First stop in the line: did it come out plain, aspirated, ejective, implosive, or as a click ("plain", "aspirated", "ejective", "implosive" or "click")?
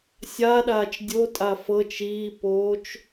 implosive